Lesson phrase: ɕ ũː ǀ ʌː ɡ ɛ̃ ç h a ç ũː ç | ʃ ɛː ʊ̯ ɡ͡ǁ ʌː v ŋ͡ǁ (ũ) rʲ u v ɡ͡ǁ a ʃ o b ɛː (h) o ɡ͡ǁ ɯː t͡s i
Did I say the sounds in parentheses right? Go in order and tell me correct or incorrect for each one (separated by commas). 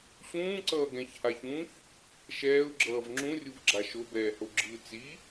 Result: correct, correct